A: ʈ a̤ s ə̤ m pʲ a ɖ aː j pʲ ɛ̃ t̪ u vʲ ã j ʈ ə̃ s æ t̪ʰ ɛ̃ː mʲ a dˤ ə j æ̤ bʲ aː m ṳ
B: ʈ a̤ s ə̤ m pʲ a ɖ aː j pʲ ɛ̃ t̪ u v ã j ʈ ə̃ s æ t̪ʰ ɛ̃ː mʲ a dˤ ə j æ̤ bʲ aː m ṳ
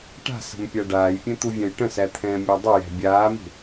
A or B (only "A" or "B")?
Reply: A